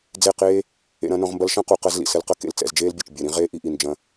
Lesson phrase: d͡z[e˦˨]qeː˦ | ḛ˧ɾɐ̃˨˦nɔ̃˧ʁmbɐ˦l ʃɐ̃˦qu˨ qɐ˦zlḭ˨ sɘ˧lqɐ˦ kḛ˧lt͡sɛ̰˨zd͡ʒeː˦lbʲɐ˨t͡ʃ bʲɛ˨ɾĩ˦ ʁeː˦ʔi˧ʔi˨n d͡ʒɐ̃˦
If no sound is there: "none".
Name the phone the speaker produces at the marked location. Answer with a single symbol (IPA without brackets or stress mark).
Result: e˦˨